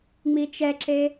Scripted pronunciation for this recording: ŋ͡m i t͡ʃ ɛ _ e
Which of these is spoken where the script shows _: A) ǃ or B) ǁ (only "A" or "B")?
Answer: B